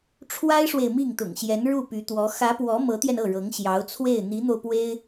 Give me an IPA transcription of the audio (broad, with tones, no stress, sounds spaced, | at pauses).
ʈ͡ʂʰ w a˥ ɪ̯ ʂ w e˨ ɪ̯ m i˥˩ ŋ t̪ ʊ̰˨˩ ŋ ɕ j ɛ˧˥ n ɻ u˥˩ p y˧˥ t̪ w ɔ˧˥ x ä˧˥ p w ɔ˧˥ m ɤ˧˥ t̪ j ɛ˧ n ɤ˥˩ ɻ ɤ˧˥ ŋ ɕ j ɑ˧˥ ʊ̯ t͡sʰ w e˥˩ ɪ̯ n̪ i˧˥ n̪ o˧ ʊ̯ p w e˥ ɪ̯